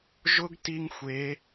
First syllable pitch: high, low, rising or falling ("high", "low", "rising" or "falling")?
high